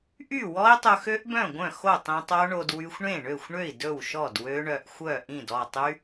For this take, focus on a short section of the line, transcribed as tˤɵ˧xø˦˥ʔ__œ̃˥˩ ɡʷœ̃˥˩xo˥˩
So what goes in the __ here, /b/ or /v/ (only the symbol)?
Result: b